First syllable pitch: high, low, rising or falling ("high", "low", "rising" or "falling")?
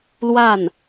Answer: falling